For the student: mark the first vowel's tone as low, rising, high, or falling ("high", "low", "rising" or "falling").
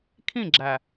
falling